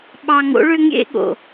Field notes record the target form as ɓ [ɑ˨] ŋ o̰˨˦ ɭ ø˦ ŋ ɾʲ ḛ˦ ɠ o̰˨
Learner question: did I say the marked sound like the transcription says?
yes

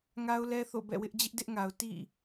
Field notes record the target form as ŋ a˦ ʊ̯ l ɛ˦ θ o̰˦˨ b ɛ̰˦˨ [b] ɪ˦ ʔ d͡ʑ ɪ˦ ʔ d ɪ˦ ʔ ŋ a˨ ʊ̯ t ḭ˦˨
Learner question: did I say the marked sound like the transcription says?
no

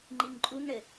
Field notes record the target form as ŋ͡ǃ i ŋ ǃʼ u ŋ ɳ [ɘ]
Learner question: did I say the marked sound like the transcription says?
yes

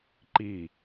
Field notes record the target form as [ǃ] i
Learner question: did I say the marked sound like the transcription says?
yes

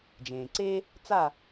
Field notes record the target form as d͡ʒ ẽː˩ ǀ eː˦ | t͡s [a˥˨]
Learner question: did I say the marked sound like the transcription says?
yes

